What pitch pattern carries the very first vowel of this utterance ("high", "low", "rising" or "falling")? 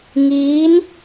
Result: rising